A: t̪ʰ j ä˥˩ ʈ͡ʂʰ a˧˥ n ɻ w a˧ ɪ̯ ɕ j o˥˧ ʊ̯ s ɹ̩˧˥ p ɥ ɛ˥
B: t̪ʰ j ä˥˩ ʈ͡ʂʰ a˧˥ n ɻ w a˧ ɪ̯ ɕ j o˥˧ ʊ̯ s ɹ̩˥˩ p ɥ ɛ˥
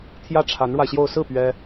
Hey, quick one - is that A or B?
B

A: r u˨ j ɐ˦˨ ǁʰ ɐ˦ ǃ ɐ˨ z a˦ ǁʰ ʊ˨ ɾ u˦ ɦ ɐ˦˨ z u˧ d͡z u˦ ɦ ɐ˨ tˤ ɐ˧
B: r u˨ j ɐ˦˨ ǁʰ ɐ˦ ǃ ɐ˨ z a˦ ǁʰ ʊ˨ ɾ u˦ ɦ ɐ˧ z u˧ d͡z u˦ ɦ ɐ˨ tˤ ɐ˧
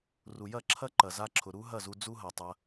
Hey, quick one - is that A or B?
A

